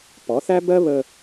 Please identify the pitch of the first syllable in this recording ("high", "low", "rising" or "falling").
rising